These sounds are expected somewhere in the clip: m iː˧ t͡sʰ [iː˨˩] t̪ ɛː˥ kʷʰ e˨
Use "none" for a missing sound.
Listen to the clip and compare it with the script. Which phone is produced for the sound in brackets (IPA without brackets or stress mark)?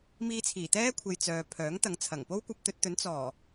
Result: iː˨˩